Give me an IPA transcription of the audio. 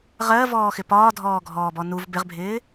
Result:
ʁ ɜ v ɔː x ɪ p ɒː dʱ ɔː ɡʱ ɔː b ɔ n u v b ɪ ʁ bʱ ɪː

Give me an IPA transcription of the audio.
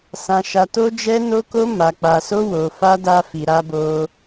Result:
s ã˦ ʃ a˦ t o˦ d͡ʒ ɛ˦ n o˦ k o˦ m a˧ k͡p a˧ s o˦ w o˧ f a˦ d a˦ f i˧ ɾ a˧ b o˧

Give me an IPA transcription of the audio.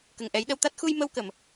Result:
k ə˨˩ ŋ ʔ ɛ˨˩˦ j ɗ ə˧ w t̪ a˦˥ t̚ x u˧ j m ə˧ w k ə˨˩˨ m

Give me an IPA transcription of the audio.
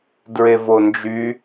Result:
d ɹ e v o n d͡ʒ y

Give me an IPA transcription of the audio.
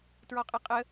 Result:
t ɹ ɔ qʼ e qʼ ə

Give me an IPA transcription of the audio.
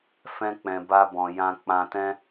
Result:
f ɛ̃˦ k͡p ɛ̃˧ b a˦ b ɔ̃˧ j ã˧ k͡p ã˧ t ɛ̃˦

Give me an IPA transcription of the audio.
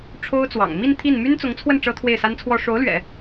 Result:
ʈ͡ʂʰ o˥ ʊ̯ t͡s w ɑ̰˨˩ ŋ m i˥˧ n t̪ʰ i˥˩ n m y˥ n t͡s ʊ˧˥ ŋ t͡sʰ w ə˥˩ n ʈ͡ʂ ɤ˥ t̪ʰ w e˥˩ ɪ̯ s a˥ n t͡sʰ w ɔ˥ ʂ o˧˥ ʊ̯ l ɥ ɛ̰˨˩˦

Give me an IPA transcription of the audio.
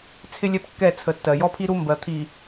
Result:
t͡sʰ ɪ˦ lʲ ɛ˦ p kː ɛ˦˨ t͡sʰ ə˨ tː ɜ˨ j ɔ˦ pʰ i˦ ɾ u˦ m b ɜ˨ t̪ʰ i˨

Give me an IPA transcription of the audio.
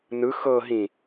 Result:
n ɯ x ɤ ɦ ĩ

